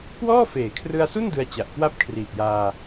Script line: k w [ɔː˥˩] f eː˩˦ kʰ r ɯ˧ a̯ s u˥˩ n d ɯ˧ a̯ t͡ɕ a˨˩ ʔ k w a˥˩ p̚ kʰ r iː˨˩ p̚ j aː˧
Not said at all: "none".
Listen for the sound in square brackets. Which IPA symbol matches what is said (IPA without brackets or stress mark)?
ɔː˥˩